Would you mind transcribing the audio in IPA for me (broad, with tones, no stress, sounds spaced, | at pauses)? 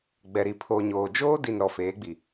ɡ͡b ɛ˨ ɾ i˨ pʰ o˨ ɲ oː˨ d͡ʒ oː˦ d i˨ n ɾ ɔ˨ f eː˨˦ ɡ͡b i˨